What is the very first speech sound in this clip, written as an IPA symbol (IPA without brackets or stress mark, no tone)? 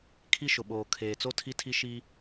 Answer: kʰ